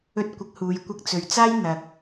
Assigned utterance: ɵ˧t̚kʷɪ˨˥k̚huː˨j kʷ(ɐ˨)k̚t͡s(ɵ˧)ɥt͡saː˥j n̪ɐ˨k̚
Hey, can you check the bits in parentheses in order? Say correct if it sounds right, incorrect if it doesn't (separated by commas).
incorrect, incorrect